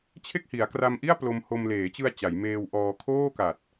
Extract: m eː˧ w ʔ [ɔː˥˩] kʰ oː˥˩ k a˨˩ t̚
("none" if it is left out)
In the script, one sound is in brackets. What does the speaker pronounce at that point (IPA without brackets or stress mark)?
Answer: ɔː˧